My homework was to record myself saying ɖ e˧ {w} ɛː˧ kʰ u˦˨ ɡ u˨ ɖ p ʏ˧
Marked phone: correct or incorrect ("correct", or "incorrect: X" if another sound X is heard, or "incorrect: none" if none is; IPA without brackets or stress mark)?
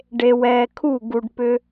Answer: correct